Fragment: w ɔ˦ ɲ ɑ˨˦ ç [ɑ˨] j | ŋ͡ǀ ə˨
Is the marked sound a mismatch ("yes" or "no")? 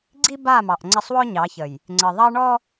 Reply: yes